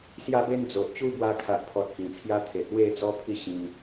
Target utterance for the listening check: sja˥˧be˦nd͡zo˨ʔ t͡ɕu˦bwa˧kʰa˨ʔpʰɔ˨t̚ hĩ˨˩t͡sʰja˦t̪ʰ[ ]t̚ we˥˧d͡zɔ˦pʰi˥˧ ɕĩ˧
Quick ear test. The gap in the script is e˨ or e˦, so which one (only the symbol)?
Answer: e˨